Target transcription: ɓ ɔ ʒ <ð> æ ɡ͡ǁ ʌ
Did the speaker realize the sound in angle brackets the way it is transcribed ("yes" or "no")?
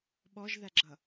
yes